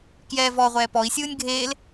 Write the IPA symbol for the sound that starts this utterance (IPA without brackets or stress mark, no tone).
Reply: k